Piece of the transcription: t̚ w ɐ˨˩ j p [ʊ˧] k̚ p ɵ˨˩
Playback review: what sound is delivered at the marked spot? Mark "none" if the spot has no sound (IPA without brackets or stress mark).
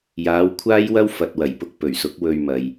ʊ˧